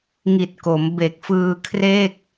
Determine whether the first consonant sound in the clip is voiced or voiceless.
voiced